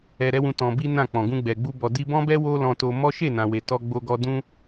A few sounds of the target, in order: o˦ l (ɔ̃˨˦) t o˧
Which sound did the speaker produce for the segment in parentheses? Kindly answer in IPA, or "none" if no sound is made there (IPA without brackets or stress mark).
ɔ̃˧